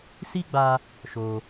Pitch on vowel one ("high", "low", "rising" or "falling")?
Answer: high